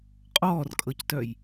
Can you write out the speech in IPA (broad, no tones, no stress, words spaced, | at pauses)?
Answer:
qʼɔːrkʼɤctœj